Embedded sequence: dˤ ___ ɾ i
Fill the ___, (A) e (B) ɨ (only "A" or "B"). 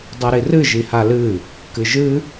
B